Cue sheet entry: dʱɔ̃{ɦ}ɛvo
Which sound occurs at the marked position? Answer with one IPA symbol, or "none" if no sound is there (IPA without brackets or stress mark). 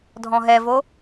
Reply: ɦ